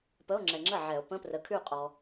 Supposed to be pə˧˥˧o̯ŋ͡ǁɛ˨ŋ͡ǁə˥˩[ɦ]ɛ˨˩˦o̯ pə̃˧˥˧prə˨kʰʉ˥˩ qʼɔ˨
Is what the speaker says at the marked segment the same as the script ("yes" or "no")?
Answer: no